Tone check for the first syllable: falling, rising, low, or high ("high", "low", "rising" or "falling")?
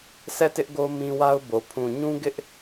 falling